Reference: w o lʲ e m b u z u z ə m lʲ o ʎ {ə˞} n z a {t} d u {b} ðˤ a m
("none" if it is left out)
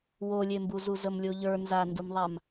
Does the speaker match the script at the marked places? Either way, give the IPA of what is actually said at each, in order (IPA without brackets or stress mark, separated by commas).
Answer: ə˞, n, m